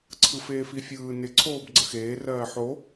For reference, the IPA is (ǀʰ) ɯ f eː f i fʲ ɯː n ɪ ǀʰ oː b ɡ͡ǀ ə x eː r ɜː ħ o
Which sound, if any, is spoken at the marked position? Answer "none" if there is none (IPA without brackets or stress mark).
ǀʰ